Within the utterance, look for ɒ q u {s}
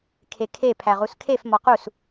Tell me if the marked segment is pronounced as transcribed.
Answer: yes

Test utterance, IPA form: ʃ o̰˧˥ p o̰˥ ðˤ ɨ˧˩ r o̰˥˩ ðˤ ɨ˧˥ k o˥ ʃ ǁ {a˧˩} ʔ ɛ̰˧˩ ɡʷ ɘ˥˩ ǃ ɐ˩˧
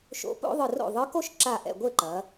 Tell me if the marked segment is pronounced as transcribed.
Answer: yes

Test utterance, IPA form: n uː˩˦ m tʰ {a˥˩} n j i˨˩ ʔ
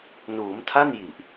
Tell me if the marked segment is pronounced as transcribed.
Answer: yes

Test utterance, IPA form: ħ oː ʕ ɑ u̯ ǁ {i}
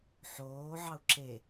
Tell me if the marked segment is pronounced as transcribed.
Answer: no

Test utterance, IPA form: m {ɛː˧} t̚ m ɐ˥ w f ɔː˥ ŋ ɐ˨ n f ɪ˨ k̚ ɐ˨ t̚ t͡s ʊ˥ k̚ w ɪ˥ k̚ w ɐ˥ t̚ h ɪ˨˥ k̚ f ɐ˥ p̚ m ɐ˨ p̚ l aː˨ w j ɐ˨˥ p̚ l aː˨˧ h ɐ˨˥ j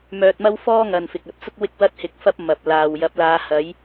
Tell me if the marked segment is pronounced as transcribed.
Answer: no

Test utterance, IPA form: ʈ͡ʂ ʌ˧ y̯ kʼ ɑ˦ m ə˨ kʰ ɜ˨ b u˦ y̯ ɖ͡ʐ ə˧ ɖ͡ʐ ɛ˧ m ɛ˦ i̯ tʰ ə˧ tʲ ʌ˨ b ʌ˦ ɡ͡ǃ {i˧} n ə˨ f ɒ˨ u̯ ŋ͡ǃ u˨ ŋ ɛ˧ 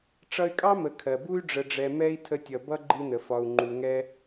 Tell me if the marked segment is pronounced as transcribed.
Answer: yes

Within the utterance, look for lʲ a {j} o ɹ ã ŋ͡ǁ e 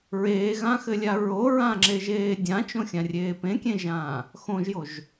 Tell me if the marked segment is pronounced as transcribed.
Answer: no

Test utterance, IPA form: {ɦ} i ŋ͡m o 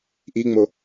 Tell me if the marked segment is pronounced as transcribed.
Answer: no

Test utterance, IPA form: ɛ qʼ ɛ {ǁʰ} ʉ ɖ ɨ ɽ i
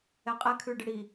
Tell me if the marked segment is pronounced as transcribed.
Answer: no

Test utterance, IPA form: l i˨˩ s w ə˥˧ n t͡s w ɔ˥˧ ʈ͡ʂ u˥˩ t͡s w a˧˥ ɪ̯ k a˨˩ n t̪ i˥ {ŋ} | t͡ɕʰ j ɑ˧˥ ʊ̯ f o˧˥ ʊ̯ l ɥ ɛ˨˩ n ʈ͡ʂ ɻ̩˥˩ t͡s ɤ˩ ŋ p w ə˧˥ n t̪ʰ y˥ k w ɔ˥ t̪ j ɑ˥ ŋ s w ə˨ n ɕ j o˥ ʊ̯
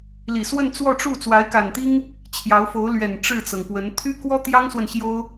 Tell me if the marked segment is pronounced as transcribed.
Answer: yes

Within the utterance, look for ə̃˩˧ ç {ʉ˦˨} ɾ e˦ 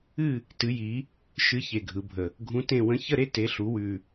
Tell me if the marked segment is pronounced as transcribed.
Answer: no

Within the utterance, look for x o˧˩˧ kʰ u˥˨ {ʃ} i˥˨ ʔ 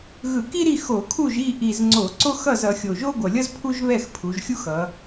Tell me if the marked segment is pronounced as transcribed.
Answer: no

